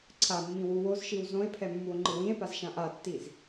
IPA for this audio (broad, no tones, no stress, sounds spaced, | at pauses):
ǀʰ a mː ĩ w u w o z ʃ i w z õ e̯ pʰ ɛ mː u o̯ ŋ͡ǃ ɯ w ĩ e̯ p a z ʃ ã ʔ a tː i z